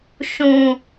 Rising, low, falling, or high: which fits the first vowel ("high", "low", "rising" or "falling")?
low